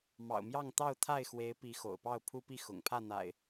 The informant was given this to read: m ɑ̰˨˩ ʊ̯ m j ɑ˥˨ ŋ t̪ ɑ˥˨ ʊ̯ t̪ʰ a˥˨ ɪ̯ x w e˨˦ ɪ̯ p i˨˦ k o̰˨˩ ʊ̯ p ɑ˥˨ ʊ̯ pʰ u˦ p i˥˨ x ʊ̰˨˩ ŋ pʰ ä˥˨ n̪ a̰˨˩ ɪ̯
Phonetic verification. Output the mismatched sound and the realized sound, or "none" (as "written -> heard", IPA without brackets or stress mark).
k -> x